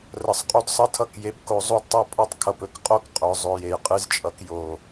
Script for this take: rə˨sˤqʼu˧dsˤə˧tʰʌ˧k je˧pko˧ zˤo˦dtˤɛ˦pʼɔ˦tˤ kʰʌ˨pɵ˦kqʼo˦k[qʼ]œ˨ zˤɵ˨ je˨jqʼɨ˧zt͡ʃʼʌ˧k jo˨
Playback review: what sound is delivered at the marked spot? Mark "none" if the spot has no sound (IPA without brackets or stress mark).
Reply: qʼ